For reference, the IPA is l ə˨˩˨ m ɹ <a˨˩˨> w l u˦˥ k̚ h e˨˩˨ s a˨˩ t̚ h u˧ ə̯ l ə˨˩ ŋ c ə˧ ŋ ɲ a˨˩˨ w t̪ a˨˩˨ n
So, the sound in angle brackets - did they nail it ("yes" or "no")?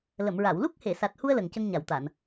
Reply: yes